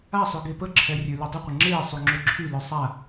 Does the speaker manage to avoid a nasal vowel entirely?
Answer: yes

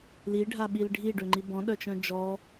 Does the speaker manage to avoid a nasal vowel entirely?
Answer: no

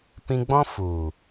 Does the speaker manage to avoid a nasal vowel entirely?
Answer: no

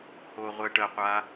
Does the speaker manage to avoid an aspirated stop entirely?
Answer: yes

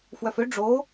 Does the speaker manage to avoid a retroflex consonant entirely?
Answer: no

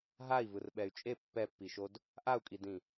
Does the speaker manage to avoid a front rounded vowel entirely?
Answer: no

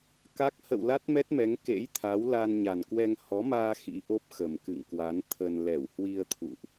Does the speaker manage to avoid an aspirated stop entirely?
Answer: no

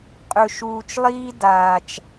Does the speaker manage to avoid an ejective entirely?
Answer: no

